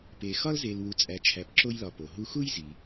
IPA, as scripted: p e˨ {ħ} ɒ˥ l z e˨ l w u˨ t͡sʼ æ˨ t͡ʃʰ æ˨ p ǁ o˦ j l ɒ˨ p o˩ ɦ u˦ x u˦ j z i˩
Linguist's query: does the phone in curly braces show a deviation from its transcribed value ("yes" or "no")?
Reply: yes